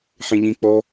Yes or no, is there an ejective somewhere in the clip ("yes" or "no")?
no